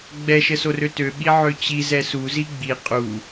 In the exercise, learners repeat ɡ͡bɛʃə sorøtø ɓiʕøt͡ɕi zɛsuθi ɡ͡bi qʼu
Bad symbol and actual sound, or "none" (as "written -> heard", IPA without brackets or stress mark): θ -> z